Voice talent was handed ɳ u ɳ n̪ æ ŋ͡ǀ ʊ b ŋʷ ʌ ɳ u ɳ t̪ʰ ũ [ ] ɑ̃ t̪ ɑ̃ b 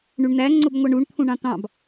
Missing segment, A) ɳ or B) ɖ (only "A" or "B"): A